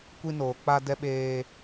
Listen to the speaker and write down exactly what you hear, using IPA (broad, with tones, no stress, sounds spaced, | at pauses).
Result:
kʷ i˦ n oː˨ k͡p a˦ d ɛ˦ ɓ eː˦